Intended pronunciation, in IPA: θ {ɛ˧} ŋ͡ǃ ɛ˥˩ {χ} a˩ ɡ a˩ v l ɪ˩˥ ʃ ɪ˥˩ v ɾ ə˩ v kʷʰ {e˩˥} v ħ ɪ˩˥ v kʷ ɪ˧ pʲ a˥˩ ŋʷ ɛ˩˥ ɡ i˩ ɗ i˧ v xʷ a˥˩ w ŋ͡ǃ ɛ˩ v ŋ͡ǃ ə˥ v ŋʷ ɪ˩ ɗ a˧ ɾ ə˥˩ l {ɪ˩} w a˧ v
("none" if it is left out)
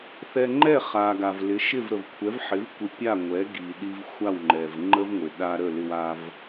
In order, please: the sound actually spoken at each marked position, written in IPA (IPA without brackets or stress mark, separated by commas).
ɛ˧, χ, ɛ˩˥, ɪ˧